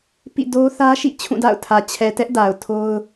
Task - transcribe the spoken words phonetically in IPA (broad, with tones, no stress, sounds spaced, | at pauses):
p ḭ˦˨ d o˦ θ ä˦ ʃ ḭ˦˨ t͡ɕʰ ũ˦˨ d a̰˦˨ ʊ̯ tʰ ä˨ t͡ɕʰ ɛ˨ t ɛ˦ ʔ d a˨ ʊ̯ tʰ o˦ ʊ̯